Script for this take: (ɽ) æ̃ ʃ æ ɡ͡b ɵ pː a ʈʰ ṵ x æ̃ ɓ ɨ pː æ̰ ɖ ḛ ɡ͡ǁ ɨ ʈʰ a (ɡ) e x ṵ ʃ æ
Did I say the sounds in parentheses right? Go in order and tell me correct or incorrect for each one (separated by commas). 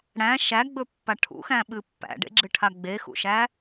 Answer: correct, incorrect